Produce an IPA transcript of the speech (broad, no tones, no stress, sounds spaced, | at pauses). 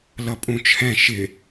l ʌ pʼ ũ t͡ʃʰ ɛ̃ ʃ ɪ